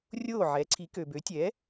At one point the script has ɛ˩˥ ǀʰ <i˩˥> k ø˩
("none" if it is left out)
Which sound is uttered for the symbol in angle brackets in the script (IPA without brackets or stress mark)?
i˩˥